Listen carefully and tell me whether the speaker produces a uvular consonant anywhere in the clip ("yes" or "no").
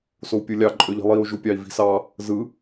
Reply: no